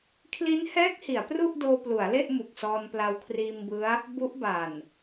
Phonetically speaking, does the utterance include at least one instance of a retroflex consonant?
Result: no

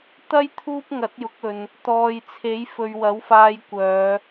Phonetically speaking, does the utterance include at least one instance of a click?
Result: no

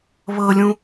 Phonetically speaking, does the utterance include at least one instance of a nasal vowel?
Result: yes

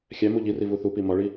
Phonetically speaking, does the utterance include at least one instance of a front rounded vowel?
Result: no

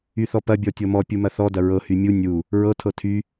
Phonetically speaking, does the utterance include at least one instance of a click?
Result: no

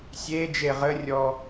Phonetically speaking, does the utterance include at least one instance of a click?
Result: no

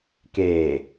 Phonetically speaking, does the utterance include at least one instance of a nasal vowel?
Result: no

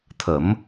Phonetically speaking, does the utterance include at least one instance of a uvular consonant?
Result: no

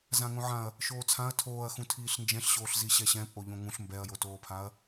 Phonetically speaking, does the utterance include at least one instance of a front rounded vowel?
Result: no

